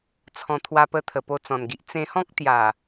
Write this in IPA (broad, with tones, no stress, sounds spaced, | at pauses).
t͡sʰ ɔ̃˨˩ t̪ʰ w a˧ p ə˧ t̪ʰ ə˨˩ p o˧ t͡s ɔ̃˨˩ n ɡ i˨ ʔ t͡s ẽ˧ h ɔ̃˦ k̚ t̪ j a˨˩